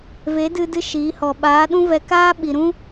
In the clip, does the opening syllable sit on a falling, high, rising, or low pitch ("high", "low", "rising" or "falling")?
rising